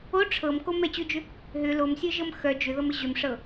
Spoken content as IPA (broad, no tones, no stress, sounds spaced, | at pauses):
o ʈ͡ʂʰ ɤ m k o m ɛ t͡ɕ ʏ d͡ʒ ʏ | ɦ ʏ l o m sʲ ə˞ ʒ ɤ m x œ d͡ʒ ʏ ð ɤ m ə ʑ ʏ m ʂ ɤ